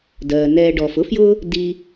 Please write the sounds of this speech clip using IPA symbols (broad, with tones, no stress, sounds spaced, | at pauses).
d ɜː˩ n ɛː˨ ɖ ɔː˩ f ʊ˥ f j ʊː˦ | d i˦